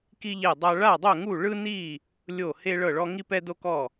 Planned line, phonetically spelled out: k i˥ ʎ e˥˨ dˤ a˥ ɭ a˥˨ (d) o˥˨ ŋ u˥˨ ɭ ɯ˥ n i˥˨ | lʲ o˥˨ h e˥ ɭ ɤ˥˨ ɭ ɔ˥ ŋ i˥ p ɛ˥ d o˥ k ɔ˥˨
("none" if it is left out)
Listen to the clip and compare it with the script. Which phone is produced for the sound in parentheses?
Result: dˤ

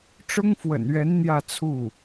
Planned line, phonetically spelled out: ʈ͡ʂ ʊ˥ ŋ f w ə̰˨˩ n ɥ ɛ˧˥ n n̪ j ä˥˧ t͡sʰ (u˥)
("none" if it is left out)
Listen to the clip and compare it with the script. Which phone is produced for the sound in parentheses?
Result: u˥˩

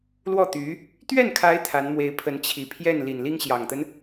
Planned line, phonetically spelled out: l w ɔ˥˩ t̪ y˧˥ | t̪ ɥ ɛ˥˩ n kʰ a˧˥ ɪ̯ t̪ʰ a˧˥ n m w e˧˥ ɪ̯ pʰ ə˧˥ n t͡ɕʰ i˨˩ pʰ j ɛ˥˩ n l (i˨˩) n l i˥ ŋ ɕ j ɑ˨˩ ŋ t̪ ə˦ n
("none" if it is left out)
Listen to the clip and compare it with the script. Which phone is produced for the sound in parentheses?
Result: i˨˩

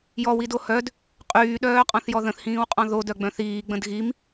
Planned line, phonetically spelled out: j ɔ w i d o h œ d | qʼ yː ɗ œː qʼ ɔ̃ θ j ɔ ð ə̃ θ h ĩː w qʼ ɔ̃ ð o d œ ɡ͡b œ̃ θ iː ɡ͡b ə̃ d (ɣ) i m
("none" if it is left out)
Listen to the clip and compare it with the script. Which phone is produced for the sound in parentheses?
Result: ɣ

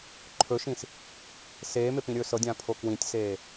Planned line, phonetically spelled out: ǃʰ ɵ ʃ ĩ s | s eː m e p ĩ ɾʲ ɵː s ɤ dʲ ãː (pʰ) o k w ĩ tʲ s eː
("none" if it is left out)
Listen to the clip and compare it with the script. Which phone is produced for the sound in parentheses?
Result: pʰ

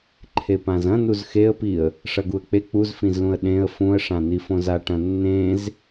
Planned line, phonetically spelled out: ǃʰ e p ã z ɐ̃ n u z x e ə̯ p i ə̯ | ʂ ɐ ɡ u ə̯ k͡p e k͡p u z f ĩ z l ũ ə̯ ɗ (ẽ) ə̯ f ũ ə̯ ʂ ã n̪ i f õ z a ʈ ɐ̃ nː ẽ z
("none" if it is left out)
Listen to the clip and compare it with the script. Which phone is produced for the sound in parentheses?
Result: ẽ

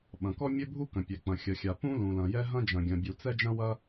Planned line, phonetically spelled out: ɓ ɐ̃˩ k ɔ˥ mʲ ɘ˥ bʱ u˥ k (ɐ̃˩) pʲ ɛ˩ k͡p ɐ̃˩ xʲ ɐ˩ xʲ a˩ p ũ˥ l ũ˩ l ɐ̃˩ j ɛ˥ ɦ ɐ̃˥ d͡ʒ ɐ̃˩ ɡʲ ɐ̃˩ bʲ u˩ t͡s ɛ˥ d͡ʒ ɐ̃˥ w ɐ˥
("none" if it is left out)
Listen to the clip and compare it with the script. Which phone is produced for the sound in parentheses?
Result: ɐ̃˩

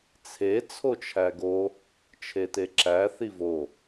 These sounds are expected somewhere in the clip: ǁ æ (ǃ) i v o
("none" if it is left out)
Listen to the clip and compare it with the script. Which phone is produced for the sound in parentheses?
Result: θ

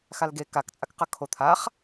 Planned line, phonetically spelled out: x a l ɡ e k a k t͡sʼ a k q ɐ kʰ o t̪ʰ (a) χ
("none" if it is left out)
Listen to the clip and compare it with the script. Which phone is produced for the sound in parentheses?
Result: a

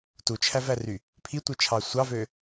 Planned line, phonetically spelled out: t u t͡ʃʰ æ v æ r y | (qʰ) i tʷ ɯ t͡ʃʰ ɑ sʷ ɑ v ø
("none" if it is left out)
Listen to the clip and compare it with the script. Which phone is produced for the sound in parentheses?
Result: pʰ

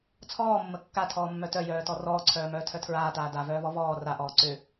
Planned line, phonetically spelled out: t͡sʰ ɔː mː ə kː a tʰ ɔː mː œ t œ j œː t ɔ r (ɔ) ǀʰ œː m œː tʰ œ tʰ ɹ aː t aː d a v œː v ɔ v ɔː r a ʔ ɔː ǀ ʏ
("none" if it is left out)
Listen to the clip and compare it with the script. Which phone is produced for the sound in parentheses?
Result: ɔː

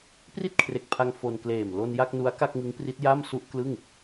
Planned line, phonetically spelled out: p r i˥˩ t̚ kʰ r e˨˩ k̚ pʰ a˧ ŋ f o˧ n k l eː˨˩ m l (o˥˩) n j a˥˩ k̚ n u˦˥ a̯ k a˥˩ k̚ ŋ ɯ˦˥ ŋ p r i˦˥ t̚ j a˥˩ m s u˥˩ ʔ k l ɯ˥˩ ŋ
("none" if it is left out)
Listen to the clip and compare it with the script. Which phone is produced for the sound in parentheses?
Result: o˧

